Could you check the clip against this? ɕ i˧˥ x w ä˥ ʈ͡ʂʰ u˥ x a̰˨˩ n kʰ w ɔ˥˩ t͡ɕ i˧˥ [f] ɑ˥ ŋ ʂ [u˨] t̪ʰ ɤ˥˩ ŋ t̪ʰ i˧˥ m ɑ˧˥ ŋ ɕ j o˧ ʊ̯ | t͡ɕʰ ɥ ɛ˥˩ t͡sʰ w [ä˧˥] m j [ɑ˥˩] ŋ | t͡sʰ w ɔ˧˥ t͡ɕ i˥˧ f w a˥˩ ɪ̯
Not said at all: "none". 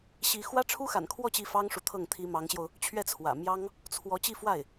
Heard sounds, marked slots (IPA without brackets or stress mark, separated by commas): f, u˨, ä̰˨˩, ɑ˥